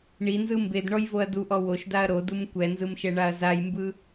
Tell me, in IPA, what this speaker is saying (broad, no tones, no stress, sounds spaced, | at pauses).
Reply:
ɳ i n z ɯ m b e d ɳ ɔ j v o ɐ̯ d u ʔ ɔ w o ʃ d a ɐ̯ ɾ o d u m kʷ ɛ n z ɯ m ʃ ɛ ɳ a ɐ̯ z a j m b ɯ